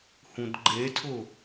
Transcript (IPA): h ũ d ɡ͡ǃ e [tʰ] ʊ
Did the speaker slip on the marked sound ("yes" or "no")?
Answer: no